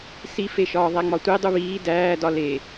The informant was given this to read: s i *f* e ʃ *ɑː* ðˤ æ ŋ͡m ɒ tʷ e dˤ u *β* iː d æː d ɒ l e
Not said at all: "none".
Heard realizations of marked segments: f, ɒː, β

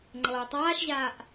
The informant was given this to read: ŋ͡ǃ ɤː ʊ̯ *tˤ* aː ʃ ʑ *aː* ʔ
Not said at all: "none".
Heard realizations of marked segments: tˤ, aː

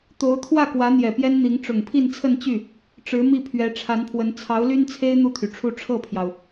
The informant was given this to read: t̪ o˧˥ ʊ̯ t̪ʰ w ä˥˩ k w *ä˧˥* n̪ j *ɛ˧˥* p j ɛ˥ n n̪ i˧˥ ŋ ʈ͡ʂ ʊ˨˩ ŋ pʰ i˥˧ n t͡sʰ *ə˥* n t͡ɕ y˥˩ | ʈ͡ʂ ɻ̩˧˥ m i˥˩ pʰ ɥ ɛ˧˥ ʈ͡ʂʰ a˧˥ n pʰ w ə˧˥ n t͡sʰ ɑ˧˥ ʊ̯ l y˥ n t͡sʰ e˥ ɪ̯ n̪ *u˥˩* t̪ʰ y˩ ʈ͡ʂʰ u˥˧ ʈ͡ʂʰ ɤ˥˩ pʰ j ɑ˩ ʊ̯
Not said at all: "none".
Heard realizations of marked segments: ä˧˥, ɛ˨˩, ə˥˧, u˥˩

